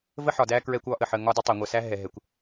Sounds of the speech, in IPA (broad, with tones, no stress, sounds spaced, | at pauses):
v ə˦ ħ ɒ˨ d æ˦ k ɹ ɛ˦ kʷ ɒ˦ ʔ ə˨ ħ ə˦ ŋ ɒ˦ d ɪ˦ tˤ ɛ˨ ŋʷ ɜ˨ s æ˦ ɦ ɛ˨ ɦ ɛ˨ kʷ